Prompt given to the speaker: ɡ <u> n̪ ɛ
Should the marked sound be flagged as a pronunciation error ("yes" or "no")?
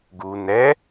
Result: no